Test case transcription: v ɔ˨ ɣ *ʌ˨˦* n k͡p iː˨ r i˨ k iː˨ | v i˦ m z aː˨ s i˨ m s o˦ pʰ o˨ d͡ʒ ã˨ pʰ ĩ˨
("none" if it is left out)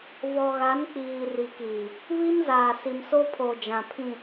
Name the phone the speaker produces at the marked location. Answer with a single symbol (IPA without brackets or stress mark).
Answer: a˨˦